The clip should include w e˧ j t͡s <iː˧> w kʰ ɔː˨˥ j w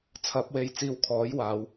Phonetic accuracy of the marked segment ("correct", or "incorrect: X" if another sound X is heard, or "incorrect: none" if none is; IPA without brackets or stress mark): correct